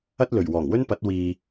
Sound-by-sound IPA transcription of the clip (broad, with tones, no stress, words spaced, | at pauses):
ɐ˥t̚lɵ˨˩ɥ wɔː˨˩ŋwɵ˥npɐ˨˥t̚ wiː˧